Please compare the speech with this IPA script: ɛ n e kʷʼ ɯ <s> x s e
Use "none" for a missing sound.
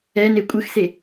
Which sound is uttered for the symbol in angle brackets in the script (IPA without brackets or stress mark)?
none